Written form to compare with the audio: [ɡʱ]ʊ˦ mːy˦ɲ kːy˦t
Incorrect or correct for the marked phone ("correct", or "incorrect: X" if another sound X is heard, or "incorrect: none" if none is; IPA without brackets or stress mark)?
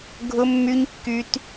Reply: correct